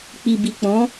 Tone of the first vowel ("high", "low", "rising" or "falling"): low